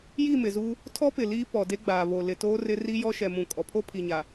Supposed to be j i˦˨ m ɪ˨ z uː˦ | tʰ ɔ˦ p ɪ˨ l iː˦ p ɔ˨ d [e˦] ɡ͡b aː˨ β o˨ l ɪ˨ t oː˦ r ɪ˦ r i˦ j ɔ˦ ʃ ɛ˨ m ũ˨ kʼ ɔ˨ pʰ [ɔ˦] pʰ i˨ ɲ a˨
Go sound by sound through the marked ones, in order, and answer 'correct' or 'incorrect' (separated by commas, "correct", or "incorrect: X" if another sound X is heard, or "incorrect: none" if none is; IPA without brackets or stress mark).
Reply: correct, incorrect: o˦